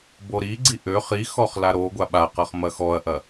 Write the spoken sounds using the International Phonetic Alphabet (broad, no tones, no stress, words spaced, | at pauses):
boɾiɡ͡ǀi ʔø χi xɔχlaɾoɡʷa ɓaqʌχ mɐxɔɐ̯ʔɐ